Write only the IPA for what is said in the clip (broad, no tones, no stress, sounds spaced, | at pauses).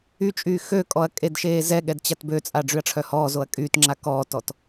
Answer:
y t͡ʃʼ yː x ø kʼ ɔ ɐ̯ kʼ e d ʃ eː z ɛ ɠ ɛ d t͡ɕ a t b ø t͡sʼ a ɖ͡ʐ y ɐ̯ ʈ͡ʂʰ œ h ɔː z o ɐ̯ kʼ yː t ŋ͡ǁ a k ɔː t ɔ t